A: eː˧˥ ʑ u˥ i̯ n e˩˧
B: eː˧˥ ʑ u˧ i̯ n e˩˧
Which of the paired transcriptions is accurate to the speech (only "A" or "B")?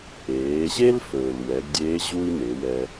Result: A